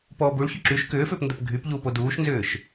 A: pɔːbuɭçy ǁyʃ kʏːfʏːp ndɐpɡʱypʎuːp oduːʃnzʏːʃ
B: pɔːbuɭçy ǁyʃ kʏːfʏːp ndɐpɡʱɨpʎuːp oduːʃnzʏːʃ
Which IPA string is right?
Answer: A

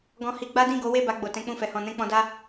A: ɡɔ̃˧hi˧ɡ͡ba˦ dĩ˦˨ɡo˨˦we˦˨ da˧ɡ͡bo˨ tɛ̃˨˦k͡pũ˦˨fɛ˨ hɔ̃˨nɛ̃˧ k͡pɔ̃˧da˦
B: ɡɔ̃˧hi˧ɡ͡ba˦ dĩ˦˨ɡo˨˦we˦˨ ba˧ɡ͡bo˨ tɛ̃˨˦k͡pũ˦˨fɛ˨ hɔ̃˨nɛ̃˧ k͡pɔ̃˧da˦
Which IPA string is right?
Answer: B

